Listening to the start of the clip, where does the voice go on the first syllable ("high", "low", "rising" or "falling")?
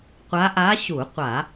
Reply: rising